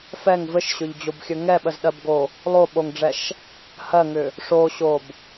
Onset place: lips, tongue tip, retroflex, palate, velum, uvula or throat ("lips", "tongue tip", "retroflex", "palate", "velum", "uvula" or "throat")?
lips